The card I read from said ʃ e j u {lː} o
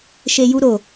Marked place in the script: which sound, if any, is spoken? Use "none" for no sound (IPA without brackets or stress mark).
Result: ɾ